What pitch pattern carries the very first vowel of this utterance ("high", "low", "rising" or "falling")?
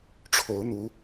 rising